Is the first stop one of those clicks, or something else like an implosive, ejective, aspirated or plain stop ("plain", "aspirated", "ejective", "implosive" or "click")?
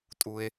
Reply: ejective